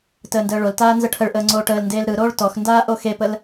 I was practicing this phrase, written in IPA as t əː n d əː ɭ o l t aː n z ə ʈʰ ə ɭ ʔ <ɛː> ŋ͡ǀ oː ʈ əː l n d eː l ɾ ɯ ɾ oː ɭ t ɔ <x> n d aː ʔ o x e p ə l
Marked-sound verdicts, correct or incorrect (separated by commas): incorrect, correct